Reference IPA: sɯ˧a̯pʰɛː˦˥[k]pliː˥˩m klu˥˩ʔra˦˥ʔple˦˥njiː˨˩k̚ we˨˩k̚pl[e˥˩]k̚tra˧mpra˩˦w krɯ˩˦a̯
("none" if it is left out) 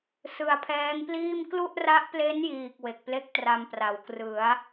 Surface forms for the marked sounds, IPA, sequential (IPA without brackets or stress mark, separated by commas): ŋ, e˥˩